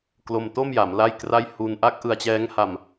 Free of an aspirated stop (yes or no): yes